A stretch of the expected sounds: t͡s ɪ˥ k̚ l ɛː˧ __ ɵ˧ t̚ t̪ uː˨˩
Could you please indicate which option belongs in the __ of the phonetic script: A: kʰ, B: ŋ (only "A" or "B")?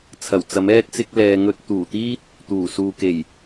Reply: B